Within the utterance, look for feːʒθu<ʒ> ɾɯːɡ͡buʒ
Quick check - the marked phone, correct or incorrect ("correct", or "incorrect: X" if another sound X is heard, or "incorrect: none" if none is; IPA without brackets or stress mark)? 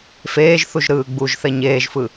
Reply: correct